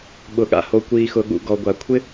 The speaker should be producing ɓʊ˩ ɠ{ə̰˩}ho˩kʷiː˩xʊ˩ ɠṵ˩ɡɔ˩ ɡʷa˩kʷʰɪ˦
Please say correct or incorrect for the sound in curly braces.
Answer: incorrect